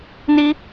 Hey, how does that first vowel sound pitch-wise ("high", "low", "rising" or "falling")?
high